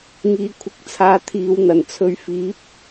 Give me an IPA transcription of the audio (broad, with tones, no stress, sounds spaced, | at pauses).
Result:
ŋ iː˨ kʷʰ ɪ˨˥ k̚ t͡sʰ aː˧ t̪ʰ iː˨ w n̪ ɐ˨˩ n t͡sʰ ɵ˧ ɥ f iː˨˥ p̚